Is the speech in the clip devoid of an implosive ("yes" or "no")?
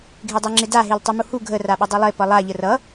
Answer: no